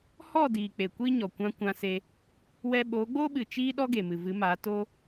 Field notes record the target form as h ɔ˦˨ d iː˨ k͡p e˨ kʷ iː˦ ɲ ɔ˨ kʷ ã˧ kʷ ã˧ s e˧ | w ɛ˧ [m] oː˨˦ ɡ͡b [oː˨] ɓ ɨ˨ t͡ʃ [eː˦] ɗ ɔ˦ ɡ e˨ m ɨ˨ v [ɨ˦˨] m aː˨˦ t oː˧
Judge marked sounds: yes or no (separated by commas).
no, no, no, no